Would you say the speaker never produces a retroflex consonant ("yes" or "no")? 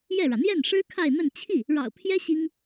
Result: no